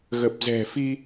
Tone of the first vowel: low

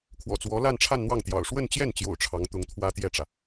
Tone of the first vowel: low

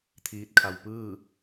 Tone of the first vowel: rising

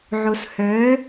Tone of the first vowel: low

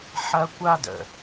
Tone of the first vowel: high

